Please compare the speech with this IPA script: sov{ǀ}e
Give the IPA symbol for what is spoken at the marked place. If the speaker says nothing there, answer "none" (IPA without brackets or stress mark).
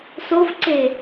ǀ